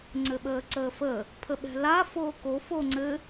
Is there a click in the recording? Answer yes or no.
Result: yes